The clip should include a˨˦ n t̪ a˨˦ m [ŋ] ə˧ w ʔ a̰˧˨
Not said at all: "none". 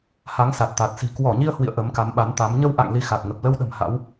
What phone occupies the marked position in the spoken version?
ɲ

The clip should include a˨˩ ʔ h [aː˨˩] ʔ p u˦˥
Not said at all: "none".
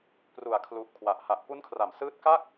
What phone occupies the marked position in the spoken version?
a˨˩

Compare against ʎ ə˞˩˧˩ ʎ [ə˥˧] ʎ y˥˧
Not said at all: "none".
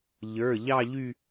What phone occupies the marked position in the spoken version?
ɑ˥˧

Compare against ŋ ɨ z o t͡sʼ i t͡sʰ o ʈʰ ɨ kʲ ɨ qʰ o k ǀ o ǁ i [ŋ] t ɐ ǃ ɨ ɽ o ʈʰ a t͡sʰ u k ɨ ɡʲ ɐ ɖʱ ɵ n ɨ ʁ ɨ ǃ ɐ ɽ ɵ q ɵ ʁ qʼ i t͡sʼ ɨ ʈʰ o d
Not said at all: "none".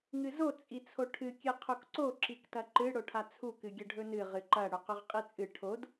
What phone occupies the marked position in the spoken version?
k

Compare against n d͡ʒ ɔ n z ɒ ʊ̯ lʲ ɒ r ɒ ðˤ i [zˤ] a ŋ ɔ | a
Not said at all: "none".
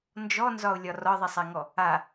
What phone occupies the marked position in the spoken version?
sˤ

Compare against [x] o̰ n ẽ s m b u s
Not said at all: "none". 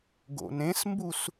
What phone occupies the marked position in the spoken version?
ɡ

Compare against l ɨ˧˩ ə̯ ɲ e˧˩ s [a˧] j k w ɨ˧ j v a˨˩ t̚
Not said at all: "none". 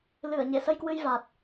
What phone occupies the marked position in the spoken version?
ə˧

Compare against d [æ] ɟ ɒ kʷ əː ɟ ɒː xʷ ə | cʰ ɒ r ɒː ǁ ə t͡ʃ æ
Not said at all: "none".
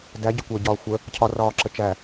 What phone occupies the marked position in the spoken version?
æ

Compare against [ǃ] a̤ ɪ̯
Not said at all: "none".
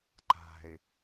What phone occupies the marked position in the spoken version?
ǃ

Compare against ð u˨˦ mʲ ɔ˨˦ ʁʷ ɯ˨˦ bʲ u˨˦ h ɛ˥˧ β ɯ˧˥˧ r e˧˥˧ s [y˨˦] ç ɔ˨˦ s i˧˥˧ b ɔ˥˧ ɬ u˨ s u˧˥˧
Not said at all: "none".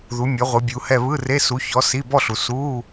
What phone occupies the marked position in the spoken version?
u˨˦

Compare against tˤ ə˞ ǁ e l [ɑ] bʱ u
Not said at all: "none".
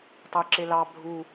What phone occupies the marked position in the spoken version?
ɑ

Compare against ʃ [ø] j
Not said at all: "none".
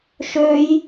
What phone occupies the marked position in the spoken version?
ø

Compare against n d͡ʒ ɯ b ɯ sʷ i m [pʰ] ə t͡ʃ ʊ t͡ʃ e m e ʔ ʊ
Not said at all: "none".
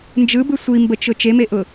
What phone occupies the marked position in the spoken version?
b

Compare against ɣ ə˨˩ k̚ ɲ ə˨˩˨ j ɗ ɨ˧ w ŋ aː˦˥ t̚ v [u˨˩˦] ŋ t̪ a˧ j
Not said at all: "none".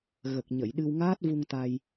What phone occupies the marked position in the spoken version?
u˧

